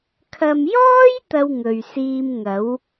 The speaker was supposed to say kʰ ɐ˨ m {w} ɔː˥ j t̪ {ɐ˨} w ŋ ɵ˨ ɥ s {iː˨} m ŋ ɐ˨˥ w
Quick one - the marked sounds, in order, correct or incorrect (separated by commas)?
incorrect, incorrect, incorrect